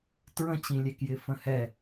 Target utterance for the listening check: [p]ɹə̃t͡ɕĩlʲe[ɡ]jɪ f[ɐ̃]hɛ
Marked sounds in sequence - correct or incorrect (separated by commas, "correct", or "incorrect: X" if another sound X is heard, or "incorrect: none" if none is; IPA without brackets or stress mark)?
incorrect: t, incorrect: k, incorrect: ə̃